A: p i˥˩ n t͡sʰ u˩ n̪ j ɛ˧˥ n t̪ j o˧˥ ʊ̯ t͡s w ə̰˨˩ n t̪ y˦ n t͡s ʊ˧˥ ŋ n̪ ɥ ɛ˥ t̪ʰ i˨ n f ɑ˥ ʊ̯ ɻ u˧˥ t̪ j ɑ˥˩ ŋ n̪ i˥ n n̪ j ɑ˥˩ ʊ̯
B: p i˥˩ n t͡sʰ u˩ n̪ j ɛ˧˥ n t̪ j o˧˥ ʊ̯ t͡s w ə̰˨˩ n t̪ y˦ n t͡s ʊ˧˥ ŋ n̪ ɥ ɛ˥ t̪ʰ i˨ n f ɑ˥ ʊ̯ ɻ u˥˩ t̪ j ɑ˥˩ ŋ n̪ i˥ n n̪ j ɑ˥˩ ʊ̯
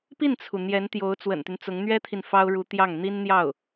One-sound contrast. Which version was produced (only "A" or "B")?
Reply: A